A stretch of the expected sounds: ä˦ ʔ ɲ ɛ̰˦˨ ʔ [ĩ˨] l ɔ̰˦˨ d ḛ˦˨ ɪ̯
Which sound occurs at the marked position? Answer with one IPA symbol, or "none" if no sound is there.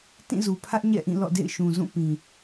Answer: ĩ˦˨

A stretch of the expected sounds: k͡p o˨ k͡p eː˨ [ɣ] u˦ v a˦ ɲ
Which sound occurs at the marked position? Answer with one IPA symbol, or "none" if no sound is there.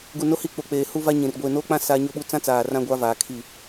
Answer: h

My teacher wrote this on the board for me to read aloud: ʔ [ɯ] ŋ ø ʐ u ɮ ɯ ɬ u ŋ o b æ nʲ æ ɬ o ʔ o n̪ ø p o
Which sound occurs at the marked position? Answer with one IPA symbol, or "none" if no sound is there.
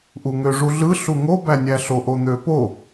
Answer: u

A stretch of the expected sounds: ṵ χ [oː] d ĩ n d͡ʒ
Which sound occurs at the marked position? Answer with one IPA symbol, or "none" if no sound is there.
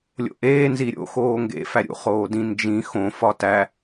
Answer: oː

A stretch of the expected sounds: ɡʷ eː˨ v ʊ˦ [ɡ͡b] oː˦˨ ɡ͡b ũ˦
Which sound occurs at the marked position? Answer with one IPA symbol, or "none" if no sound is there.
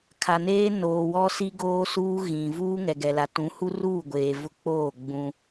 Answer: k͡p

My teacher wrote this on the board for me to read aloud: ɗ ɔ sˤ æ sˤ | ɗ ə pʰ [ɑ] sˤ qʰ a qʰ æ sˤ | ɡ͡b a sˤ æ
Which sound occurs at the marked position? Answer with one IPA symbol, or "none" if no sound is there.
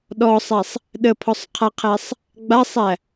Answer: ɔ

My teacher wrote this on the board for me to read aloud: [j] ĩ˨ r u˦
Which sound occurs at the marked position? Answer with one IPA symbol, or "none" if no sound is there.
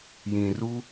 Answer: j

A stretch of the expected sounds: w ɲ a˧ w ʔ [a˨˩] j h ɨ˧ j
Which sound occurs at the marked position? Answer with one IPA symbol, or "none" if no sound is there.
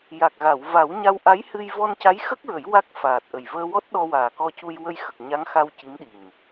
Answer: a˧˥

